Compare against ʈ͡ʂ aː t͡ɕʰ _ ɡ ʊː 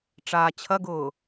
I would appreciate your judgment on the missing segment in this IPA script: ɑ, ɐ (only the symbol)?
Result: ɐ